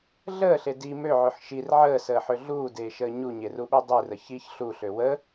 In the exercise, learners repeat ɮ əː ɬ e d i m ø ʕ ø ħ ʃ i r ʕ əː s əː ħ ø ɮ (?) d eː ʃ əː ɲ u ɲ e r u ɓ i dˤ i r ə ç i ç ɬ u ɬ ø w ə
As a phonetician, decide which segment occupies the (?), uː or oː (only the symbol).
uː